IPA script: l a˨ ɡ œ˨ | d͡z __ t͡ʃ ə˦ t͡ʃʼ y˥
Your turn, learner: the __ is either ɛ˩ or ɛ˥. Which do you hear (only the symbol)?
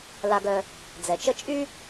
ɛ˩